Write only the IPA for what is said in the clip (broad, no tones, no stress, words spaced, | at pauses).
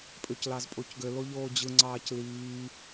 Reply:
pʼøclɑzpʼocɡø loʎoːd͡ʑɯ ŋ͡ǀɑːcliː